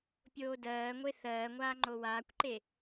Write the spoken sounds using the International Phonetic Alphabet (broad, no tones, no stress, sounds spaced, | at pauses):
pʲ oː d ɜː ŋʷ e θ ɜː ŋʷ aː ŋ͡ǃ o w aː kʷ ǃ e